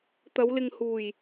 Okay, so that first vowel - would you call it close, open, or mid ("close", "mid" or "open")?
open